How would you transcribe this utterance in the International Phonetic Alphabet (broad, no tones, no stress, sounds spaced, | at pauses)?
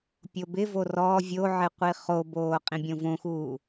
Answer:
pʲ o b ɪ v o r ɔ vʲ o ʕ ɪ qʷ i χ o b oː qʼ ĩ bʲ õ v õ x uː